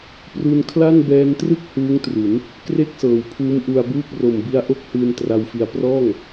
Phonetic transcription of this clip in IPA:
p r u˧ n kʰ l a˥˩ n b ɛː˧ n t r ɯ˥˩ k̚ h uː˦˥ ŋ t r u˩˦ n | k r e˥˩ k̚ s ɤː˩˦ w pʰ uː˦˥ m ʔ u˧ a̯ b uː˥˩ k̚ r o˨˩ m b i˦˥ a̯ ʔ o˥˩ k̚ h ɯː˧ n t r a˧ w f i˧ a̯ p r ɔː˥˩ ŋ

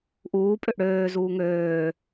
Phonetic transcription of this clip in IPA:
ʔ uː pʼ ø ʔ ɽ øː z uː ŋ øː

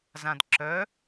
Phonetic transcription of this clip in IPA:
z ã d ǁ œ

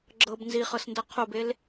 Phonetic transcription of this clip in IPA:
ɡ͡ǁ ɤ b n z i χ ɤ s n d ɤ qʰ o b e l

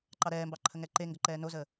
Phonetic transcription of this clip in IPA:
ǃ ɑ ɾ ɛː m b ɑ ǃʰ ə ŋ ɛ ǃ e ŋ ɡ ə ǃ ɛː n o z əː

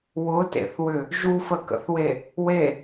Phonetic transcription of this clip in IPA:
w ʊ t ḛ θ w ʏ | ʒ u f ə k ə̰ θ w e | w e

